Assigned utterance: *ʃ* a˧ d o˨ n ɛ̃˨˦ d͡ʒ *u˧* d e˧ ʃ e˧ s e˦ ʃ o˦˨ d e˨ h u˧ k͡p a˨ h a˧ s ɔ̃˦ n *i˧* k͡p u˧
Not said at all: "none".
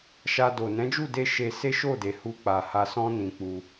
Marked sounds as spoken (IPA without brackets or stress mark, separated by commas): ʃ, u˦˨, ĩ˧